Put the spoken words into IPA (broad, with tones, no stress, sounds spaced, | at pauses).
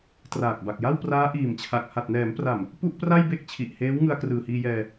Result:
t r aː˨˩ k̚ b a˨˩ k̚ j a˥˩ w p r aː˦˥ ʔ iː˨˩ m t͡ɕʰ a˨˩ k̚ h a˨˩ t̚ n ɛː˩˦ m p r a˨˩ m | p u˥˩ ʔ p r a˥˩ j b e˥˩ k̚ t͡ɕʰ i˨˩ ʔ h eː˦˥ w ŋ ɯ˧ a̯ k r ɯː˨˩ h iː˧ j ɛː˧